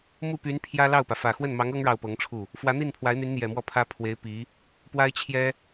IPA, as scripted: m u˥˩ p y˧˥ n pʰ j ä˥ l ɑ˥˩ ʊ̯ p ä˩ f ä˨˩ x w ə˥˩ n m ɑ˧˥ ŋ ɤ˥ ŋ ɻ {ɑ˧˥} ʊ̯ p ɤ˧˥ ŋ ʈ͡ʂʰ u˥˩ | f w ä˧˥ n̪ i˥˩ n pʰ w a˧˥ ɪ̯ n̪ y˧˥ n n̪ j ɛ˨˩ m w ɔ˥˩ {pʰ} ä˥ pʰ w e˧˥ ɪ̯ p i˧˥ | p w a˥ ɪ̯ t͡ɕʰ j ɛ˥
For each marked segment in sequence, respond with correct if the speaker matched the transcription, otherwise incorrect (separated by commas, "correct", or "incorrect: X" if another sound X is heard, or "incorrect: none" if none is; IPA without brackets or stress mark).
incorrect: ɑ˥˩, correct